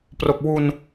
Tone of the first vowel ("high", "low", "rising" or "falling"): low